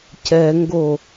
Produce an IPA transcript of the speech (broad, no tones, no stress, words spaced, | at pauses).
cɛŋɡo